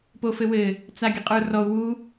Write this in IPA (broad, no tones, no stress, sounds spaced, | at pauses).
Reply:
p o f ɘ w ɘ | t͡s a ɡʲ ə qʼ ə˞ r ɔ u̯ w u